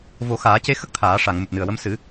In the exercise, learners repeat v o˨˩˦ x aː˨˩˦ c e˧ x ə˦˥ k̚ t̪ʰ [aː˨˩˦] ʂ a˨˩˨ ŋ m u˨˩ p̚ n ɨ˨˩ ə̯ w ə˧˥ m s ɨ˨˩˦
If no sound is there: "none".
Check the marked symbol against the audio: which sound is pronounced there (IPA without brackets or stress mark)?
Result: aː˨˩˦